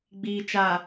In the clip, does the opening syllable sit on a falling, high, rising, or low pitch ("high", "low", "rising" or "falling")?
low